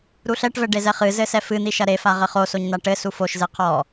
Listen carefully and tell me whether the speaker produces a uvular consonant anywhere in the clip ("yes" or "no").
yes